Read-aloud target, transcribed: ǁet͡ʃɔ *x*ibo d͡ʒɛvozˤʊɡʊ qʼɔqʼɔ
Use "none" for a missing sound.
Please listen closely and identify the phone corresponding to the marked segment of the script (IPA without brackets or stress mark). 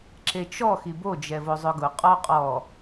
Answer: x